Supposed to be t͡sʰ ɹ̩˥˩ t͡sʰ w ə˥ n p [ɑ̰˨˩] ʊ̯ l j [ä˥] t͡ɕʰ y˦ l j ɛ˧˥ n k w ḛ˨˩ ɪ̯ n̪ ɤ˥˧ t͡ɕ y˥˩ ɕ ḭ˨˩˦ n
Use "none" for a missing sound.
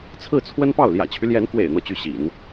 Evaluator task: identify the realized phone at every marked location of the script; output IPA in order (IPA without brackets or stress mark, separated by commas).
ɑ˥˩, ä̰˨˩